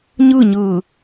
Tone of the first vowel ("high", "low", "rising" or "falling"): falling